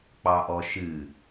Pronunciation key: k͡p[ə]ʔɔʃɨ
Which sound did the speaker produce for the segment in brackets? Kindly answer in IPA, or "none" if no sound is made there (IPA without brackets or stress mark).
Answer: ɑ